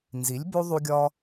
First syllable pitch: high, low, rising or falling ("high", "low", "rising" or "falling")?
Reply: rising